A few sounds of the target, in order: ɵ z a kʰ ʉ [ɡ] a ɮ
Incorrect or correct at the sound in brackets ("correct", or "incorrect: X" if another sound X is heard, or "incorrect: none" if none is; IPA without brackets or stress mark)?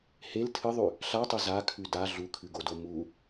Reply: incorrect: d